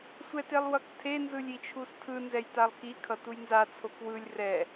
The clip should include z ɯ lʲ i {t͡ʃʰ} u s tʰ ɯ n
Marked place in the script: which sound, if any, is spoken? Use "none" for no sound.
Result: t͡ʃʰ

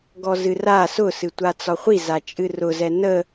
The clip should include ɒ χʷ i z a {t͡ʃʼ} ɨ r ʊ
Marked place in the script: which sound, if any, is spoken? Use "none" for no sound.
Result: t͡ʃʼ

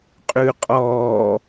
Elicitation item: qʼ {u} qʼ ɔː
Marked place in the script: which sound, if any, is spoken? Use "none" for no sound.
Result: ʉ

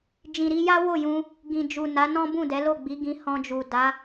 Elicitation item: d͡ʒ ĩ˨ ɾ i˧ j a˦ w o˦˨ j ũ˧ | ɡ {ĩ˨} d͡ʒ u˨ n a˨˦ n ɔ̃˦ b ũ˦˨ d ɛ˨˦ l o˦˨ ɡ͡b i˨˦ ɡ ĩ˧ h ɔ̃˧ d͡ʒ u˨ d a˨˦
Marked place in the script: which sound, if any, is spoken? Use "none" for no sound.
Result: ĩ˨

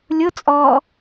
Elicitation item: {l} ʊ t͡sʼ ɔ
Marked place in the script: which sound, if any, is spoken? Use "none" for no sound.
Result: lʲ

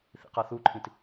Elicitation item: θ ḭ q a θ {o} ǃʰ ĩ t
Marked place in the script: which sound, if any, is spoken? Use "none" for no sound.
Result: u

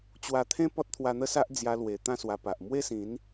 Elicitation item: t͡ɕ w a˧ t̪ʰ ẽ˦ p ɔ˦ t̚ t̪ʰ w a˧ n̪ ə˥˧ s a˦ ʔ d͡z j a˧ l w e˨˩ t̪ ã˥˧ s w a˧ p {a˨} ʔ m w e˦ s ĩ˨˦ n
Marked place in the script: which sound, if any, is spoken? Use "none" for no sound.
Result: a˨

